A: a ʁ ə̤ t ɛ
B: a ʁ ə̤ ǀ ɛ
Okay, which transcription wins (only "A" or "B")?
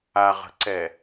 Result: B